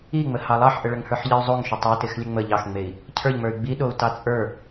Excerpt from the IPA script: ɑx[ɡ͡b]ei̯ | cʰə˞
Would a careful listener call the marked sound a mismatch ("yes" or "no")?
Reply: yes